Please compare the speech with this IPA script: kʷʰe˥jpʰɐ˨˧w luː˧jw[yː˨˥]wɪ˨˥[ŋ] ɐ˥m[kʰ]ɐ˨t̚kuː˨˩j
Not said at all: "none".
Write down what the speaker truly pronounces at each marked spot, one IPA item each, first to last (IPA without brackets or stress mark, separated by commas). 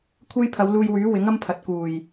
yː˨˥, ŋ, pʰ